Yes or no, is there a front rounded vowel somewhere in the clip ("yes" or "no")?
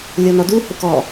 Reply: no